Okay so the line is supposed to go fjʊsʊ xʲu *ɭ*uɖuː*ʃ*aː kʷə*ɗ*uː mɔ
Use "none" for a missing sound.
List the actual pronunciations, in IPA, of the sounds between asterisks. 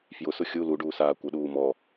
l, s, ɗ

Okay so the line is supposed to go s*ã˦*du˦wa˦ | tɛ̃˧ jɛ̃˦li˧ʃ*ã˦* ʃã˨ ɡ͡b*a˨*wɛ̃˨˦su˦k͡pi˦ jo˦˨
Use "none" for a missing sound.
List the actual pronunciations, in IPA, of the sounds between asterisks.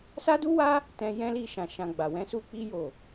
a˦, ã˨, a˨

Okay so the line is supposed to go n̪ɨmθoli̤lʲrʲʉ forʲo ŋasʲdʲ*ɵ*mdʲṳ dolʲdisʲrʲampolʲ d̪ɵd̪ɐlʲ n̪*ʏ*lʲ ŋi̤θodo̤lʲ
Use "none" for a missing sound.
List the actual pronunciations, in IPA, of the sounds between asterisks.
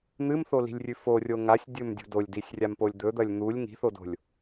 ɵ, u

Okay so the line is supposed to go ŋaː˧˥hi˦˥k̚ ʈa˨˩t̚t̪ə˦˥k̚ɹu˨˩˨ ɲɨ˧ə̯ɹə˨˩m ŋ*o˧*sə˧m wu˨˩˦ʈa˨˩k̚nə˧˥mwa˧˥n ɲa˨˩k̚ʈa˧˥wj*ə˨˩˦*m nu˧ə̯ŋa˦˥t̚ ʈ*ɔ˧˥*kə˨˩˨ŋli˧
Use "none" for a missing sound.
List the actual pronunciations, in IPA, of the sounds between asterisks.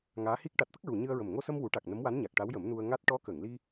o˧, ə˨˩˦, ɔ˧˥

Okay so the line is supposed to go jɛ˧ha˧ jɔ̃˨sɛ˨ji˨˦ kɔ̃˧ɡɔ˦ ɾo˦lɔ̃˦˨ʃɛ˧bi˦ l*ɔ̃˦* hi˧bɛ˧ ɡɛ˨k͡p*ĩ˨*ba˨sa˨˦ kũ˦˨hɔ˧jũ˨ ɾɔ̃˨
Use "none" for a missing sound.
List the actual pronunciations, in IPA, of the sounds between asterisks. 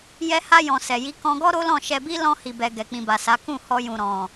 ɔ̃˦, ĩ˨

